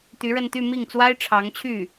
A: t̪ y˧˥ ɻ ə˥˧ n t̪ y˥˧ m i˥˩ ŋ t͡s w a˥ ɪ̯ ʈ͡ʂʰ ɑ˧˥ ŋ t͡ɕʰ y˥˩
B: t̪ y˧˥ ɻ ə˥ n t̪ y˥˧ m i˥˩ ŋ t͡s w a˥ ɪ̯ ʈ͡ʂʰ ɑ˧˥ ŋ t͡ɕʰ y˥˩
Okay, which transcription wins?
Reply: A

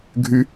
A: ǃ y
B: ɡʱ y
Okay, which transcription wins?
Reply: B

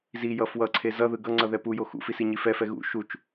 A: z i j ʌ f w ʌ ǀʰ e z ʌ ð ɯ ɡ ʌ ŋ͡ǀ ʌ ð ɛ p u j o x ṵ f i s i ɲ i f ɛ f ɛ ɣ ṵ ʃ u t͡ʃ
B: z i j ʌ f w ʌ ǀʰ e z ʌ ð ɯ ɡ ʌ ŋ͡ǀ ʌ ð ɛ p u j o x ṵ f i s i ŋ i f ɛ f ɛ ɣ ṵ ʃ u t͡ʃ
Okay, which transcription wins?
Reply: A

